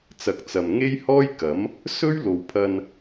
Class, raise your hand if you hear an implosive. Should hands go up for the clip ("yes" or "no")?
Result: no